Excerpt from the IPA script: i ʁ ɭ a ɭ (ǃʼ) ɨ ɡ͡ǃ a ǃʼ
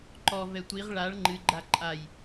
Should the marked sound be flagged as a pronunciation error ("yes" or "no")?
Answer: yes